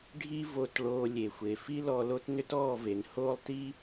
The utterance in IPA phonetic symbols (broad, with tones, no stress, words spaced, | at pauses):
ɖʱi˦ vo˧tɭoː˧ lʲe˨xʷe˨ fi˦ lɔ˧lo˦t nʏ˦tɔː˦˨ve˨n hoː˦lˠti˦